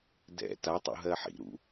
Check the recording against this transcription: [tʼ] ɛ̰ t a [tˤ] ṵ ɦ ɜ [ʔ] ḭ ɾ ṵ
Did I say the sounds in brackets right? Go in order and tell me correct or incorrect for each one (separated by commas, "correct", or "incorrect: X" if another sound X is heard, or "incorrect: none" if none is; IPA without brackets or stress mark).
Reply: incorrect: d, correct, incorrect: ħ